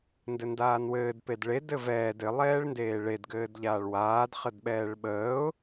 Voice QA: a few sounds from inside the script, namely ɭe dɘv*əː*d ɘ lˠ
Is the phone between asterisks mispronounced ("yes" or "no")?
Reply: yes